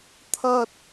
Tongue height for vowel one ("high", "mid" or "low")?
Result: low